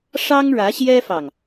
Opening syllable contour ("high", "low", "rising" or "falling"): high